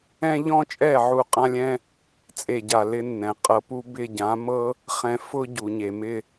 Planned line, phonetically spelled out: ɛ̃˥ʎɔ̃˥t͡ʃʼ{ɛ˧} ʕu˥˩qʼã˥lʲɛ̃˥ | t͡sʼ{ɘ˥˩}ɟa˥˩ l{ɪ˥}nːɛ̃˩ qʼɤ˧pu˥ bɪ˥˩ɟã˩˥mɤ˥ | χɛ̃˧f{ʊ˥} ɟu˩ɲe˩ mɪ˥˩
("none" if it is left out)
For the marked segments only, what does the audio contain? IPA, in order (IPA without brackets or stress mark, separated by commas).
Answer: ɛ˥˩, e˥˩, ɪ˥, ʊ˥